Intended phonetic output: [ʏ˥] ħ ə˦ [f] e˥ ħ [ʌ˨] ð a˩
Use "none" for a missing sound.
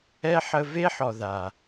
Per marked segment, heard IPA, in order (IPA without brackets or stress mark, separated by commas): ɛ˥, v, ɔ˨